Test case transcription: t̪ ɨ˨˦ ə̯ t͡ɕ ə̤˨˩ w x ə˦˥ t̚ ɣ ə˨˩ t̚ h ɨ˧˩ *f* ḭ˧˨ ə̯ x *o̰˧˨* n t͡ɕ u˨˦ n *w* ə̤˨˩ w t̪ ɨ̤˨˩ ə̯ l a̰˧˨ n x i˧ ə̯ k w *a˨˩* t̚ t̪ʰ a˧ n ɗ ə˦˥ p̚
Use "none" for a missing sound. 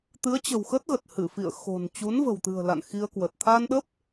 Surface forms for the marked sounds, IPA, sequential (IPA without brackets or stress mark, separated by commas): f, o̤˨˩, v, ə˨˩